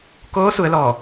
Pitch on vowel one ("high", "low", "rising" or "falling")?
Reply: rising